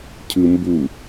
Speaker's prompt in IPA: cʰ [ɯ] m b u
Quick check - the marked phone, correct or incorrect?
correct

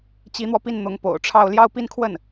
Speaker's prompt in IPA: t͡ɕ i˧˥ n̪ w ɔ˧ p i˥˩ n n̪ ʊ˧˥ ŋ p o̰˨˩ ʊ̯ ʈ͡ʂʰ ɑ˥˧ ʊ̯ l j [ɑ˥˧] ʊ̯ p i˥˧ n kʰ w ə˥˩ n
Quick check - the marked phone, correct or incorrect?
correct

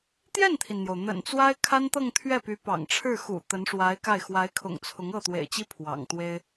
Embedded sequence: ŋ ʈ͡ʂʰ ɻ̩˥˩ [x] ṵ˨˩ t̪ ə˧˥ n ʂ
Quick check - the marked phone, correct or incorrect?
correct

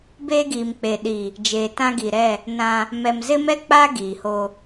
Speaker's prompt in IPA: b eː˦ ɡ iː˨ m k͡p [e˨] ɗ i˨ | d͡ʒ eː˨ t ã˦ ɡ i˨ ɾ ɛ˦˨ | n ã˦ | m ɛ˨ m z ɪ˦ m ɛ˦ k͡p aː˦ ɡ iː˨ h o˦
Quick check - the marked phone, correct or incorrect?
correct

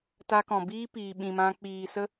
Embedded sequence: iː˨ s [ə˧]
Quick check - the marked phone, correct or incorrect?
incorrect: ə˦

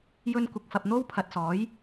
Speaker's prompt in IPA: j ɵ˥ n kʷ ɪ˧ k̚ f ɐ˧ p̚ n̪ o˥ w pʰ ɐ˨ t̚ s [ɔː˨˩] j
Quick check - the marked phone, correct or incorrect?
incorrect: ɔː˨˥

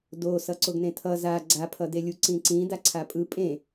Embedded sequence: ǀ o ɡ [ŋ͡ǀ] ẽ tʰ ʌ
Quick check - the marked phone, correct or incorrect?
incorrect: n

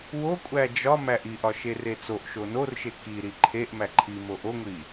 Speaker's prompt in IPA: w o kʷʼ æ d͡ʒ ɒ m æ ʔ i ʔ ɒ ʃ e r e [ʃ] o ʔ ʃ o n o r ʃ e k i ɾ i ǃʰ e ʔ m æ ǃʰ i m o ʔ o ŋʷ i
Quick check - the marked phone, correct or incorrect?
incorrect: t͡s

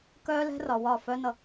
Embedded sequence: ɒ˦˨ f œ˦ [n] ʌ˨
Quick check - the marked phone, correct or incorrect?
correct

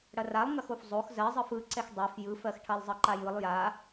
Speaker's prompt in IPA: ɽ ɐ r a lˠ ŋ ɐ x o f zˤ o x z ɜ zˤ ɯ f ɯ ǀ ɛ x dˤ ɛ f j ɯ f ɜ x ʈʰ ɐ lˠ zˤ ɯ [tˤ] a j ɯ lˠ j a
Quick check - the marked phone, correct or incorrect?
incorrect: ǃ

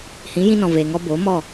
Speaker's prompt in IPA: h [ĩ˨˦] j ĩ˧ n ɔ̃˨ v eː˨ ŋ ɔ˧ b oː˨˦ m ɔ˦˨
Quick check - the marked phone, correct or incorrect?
correct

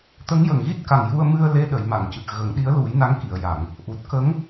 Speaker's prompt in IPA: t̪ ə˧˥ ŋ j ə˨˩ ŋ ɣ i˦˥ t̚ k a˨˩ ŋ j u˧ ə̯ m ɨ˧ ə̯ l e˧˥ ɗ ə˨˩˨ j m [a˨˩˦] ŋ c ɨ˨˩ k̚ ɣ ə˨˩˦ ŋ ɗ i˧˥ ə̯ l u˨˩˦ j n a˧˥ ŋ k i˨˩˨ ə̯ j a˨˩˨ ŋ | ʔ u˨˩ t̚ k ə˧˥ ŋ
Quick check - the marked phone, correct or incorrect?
incorrect: a˨˩˨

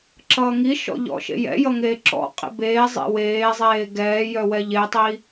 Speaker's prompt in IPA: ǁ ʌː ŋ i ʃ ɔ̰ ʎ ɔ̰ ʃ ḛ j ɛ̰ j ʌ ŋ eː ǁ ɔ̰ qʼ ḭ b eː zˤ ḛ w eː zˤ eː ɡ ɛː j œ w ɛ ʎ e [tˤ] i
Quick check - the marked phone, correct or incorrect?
correct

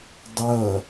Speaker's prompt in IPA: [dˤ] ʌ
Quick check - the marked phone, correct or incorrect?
correct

